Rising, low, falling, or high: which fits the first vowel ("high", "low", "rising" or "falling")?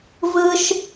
high